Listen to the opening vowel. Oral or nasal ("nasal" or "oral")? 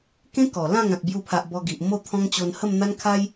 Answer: nasal